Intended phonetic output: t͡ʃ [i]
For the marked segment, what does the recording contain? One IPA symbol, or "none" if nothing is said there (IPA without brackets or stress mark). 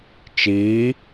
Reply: iː